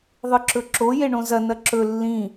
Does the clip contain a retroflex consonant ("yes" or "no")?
yes